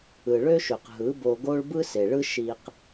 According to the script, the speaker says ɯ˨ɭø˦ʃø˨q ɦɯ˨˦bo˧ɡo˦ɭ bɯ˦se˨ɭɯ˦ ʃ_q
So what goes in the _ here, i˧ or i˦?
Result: i˧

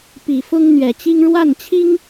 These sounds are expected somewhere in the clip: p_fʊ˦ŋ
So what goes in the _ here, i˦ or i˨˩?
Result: i˨˩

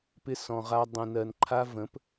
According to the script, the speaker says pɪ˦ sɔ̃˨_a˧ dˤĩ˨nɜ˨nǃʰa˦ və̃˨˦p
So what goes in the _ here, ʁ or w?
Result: ʁ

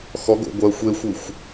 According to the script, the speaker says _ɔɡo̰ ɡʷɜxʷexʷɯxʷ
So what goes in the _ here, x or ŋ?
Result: x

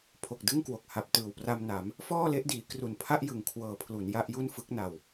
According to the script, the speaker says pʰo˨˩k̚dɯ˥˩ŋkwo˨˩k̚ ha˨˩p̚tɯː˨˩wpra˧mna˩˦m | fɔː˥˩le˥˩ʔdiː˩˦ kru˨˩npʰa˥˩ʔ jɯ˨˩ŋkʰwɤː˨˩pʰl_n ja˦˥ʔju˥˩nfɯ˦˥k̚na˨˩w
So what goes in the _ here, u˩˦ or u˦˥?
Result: u˩˦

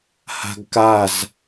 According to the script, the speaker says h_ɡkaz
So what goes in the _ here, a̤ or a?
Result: a̤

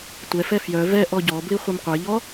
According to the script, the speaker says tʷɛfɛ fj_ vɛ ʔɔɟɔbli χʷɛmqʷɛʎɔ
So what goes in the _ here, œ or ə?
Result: œ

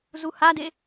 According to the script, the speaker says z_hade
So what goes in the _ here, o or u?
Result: u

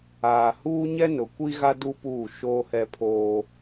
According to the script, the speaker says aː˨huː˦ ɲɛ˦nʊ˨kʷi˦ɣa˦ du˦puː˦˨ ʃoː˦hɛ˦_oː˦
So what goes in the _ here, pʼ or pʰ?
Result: pʰ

